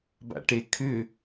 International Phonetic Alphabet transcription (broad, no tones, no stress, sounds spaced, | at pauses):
b a̰ ʈ e kʰ ʏ